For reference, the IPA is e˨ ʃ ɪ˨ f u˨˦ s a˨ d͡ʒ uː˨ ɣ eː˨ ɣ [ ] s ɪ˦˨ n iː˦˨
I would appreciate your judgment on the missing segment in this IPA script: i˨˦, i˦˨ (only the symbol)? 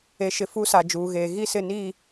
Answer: i˦˨